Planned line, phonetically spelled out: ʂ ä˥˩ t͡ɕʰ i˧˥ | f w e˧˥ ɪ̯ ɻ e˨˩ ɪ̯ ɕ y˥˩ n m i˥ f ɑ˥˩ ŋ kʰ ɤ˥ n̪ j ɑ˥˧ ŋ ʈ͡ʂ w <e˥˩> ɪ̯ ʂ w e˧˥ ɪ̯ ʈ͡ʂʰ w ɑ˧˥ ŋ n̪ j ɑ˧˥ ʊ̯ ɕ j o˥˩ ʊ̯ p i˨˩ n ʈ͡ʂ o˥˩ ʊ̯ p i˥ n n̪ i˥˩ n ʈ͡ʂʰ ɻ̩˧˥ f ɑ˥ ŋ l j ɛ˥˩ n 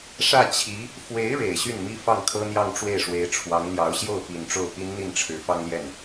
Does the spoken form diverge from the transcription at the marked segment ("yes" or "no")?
no